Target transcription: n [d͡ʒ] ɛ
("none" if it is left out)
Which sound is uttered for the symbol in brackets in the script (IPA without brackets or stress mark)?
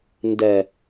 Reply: d